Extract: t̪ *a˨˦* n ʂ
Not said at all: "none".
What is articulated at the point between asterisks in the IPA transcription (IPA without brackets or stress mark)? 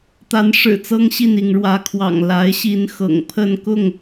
a˨˦